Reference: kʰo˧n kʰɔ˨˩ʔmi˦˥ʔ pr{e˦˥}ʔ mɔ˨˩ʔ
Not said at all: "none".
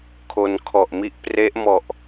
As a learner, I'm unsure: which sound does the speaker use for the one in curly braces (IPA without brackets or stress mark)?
e˦˥